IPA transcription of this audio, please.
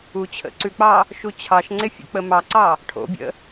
u t͡ɕʰ ə̰ ǀ ʉ k͡p ɑ | ʃ u t͡ɕʰ ɑ ʃ ŋ͡ǀ e fʲ ə̰ k͡p ə m ɑ ǀ ɑ | ʈʰ o̰ bʲ ə̰

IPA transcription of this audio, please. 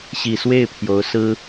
ɕ i˨˩ s w e˥˩ ɪ̯ pʰ j o˧˥ ʊ̯ s ɹ̩˥

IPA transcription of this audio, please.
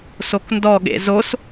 s o k n d ɔ ɠ ḛ z o s

